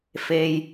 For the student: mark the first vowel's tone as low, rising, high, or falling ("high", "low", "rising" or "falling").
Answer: low